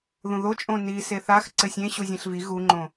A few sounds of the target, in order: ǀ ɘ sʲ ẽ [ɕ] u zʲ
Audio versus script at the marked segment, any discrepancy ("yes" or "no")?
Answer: no